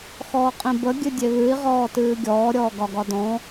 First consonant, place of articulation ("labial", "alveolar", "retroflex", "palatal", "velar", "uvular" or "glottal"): velar